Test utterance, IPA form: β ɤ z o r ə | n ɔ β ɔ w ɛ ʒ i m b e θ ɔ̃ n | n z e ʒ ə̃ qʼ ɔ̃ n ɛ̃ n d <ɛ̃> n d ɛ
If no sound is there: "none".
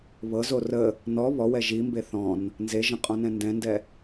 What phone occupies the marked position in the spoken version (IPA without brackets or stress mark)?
ɛ̃